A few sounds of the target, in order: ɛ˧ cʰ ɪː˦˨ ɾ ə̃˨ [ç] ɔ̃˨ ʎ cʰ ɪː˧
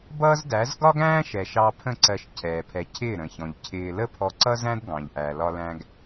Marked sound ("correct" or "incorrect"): correct